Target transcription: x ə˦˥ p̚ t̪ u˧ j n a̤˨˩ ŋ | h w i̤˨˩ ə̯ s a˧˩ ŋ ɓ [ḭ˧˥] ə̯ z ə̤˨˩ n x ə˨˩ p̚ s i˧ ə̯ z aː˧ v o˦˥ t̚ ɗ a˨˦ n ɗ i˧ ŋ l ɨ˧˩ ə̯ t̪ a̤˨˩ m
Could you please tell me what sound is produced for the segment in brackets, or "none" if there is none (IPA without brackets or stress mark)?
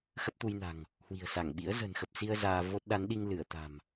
ḭ˧˥